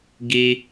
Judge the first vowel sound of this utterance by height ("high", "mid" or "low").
high